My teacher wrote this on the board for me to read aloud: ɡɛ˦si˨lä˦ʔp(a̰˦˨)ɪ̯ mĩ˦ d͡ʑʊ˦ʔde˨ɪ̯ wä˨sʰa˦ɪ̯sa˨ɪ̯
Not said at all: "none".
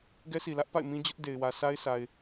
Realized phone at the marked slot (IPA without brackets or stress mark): a̰˦˨